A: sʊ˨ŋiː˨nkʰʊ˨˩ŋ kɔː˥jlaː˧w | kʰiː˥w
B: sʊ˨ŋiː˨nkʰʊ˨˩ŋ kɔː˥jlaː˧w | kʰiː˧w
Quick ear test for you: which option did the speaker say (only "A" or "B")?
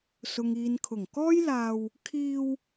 B